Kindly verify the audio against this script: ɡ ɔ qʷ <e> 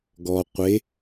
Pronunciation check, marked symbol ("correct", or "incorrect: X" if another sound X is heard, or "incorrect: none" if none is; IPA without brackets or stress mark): correct